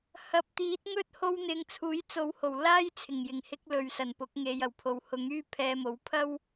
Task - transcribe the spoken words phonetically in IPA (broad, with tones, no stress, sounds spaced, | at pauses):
h ɐ˨ p̚ t̪ iː˨˥ t̚ ŋ ɵ˥ t̚ h o˥ w n̪ ɪ˧ ŋ t͡sʰ uː˨˥ j t͡s o˨˥ w h o˨˩ w l aː˥ j t͡sʰ ɪ˨˩ ŋ j ɪ˨˩ ŋ h ɪ˧ k̚ l ɵ˨ ɥ s ɐ˨˩ n p ʊ˨˥ k̚ ŋ e˧ j ɐ˨˩ w pʰ o˨ w h ʊ˨˥ ŋ yː˥ pʰ ɛː˧ m o˨˥ w pʰ ɐ˥ w